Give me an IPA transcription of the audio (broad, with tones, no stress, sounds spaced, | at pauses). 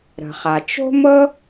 ɾ ə̤˩ χ a˩ t͡ʃ o̤˥ m ɤ˥